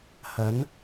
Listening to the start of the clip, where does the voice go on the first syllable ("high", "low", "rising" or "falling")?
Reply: rising